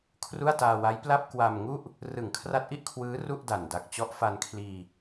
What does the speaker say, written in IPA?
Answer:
kʰ r u˥˩ a̯ t aː˧ w a˦˥ j p l a˥˩ p̚ k w a˧ m ŋ u˥˩ ʔ | r ɯ˨˩ ŋ kʰ r a˦˥ t̚ ʔ i˦˥ ʔ kʰ w ɯː˦˥ r u˥˩ ʔ d a˨˩ n d a˨˩ k̚ t͡ɕ ɔ˦˥ ʔ f a˧ n kʰ l iː˧

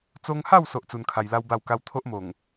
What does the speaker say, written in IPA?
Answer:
t͡s o˧ ŋ h a˥˧ w s o˦ ʔ t͡s u˧ n kʰ a˧ j l a˦ w b a˥˧ w k a˦ w t̪ʰ o˦ ʔ m o˨˩ ŋ

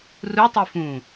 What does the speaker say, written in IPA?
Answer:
r u tˤ i f ũ

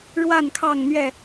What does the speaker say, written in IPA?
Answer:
ɻ w a˥˨ n kʰ ɑ˥˨ ŋ n̪ ɥ ɛ˥˨

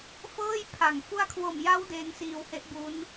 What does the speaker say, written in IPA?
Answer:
f ɤː˥˩ j pʰ a˨˩ ŋ f u˧ a̯ kʰ w o˨˩ m j a˦˥ w d eː˦˥ ŋ s iː˧ w h e˦˥ ʔ b u˦˥ n

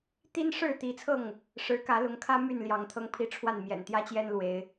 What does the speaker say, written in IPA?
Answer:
t̪ i˦ n ʂ ɻ̩˥˨ t̪ i˨˦ t͡sʰ ɤ˥˨ ŋ | ʂ ɻ̩˨˦ k ä˨˦ l ʊ˨˦ ŋ kʰ ä˦ m y˥˨ n l j ɑ˨˦ ŋ t̪ʰ ɤ˦ ŋ pʰ i˦ ʈ͡ʂʰ w a˥˨ n m j ɛ̰˨˩ n t̪ j ä˦ t͡ɕ j ɛ˦ n l w e˨˦ ɪ̯

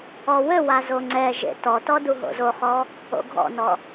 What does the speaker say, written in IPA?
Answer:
ɔ w ɘ w a z o ŋ͡ǀ ɛ ʒ ḛ t ɔ t ɔ d u ɦ o̰ z o χ ɔ | o̰ ɡʱ ɔ̰ n ɔ

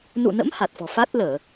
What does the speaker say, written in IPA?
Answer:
n ṵ˧˨ n ə̰˧˥ m h a˨˩ t̚ f ɔ̤˨˩ f a˦˥ t̚ l əː˧˩˨

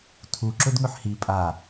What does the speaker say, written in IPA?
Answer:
tʰ u ǁ ɵ d ŋ ɵ ħ h i pʼ a

